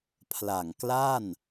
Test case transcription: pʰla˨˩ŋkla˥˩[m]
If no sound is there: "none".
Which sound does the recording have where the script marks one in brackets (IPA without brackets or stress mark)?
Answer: n